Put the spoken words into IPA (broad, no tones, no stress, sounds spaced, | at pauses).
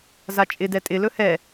z a t͡ʃʼ ɪ d ɛ tʼ ɪ l ɵ h ɛ